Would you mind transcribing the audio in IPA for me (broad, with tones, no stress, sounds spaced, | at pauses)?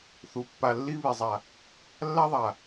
θ u˨ pː a˨ lː i˦ β i˨ zˤ a˨ | lː a˦ ðˤ a˨